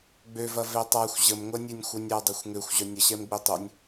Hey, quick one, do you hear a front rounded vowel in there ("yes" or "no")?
yes